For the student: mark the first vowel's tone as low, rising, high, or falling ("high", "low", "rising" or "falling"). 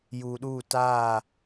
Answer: low